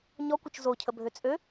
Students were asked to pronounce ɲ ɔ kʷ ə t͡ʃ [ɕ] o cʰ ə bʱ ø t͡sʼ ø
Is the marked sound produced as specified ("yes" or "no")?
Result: no